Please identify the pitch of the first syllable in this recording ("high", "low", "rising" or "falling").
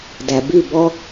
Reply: low